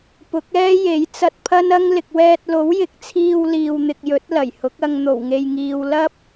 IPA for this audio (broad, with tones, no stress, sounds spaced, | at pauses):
p ʊ˨˥ k̚ ɛː˥ j e˨˥ j t͡s ɐ˧ t̚ pʰ ɐ˥ n ɐ˥ ŋ l ɪ˨ k̚ w ɛː˧ t̚ l o˨˥ w j ɪ˨˥ k̚ t͡sʰ iː˧ w l iː˨ w n̪ ɪ˨ k̚ j ɵ˨˥ t̚ l ɐ˨˩ j h ʊ˨˥ k̚ ɐ˧ ŋ n̪ o˨˩ w ŋ e˨ j ŋ iː˨ w l ɐ˥ p̚